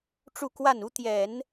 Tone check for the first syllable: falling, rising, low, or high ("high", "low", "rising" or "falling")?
falling